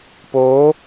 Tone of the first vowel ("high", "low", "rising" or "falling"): rising